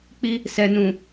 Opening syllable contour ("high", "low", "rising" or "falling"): high